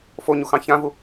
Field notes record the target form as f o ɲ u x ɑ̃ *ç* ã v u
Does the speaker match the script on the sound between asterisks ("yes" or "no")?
yes